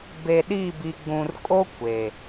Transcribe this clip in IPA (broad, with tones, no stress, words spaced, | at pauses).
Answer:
be˨ɗi˦˨bi˨ ɡ͡bũ˨rkʼo˦ kʷe˨